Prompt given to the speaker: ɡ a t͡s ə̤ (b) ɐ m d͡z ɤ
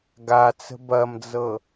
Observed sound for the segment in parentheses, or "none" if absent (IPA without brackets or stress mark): b